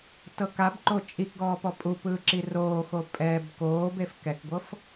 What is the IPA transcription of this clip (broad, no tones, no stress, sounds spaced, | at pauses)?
t ɤ k a b ǃ o t͡ʃʼ i k ɡ ɔː p ɔ pʼ u p ɯː ǁ i r oː x o pʼ ɛ b k oː b e f k ɛ k ɡʷ ɤ f